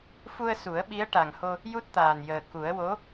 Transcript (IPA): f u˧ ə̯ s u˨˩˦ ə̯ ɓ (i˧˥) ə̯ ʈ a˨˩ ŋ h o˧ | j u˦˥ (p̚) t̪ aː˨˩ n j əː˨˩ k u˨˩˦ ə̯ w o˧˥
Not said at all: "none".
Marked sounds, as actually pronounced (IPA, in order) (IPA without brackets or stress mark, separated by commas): i˧˥, t̚